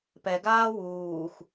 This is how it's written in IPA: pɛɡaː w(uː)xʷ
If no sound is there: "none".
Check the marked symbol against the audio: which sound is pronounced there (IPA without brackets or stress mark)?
uː